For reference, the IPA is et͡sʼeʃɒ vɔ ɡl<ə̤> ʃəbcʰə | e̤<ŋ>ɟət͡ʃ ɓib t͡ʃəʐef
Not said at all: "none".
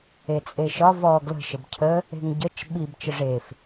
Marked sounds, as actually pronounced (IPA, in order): ə̤, ŋ

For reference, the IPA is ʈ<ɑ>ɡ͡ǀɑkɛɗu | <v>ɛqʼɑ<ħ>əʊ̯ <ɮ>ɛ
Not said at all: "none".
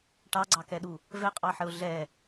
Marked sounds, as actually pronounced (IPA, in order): ɑ, v, ħ, ɮ

